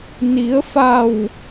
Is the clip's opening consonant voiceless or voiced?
voiced